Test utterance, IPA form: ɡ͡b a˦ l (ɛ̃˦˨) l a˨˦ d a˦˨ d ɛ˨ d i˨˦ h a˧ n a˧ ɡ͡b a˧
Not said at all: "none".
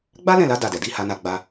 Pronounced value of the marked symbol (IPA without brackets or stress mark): ɛ̃˦˨